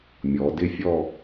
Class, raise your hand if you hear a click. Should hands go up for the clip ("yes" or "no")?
no